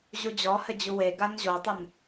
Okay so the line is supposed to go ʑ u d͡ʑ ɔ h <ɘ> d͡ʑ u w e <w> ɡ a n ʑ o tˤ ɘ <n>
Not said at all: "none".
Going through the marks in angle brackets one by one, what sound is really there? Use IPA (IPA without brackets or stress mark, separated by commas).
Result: ɘ, none, n